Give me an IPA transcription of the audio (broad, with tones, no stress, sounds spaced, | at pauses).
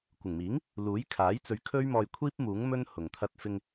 kʷ ɪ˨˩ ŋ m iː˨˥ ŋ | l uː˨˥ j kʰ aː˨˥ j t͡s ɵ˨˧ ɥ kʰ ɵ˥ ɥ m ɔː˧ j kʷʰ iː˥ p̚ m uː˨˥ ŋ m ɵ˥ n h ʊ˨ ŋ t̪ʰ ɐ˧ t̚ f ɪ˧ ŋ